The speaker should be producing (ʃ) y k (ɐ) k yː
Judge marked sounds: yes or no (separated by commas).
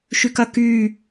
yes, yes